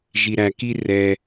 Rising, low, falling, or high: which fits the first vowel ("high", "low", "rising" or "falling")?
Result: low